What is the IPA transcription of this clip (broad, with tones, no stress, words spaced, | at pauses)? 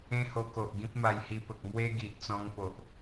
ẽ˦ho˧ko˨ʔ ɡĩ˦p̚ma˧jhi˧pə˨k̚ mwe˦ ɡi˨ʔt͡sɔ̃˧ŋ po˨ʔ